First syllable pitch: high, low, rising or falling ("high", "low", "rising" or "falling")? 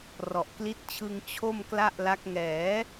low